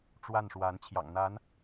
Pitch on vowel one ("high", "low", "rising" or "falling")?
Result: falling